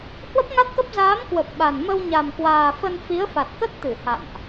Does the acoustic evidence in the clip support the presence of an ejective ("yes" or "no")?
no